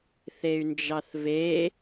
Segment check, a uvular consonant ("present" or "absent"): absent